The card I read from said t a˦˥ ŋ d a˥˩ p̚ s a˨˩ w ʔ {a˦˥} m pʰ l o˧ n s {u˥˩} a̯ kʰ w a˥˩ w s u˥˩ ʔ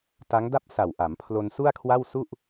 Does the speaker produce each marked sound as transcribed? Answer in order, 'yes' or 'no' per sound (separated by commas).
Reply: no, yes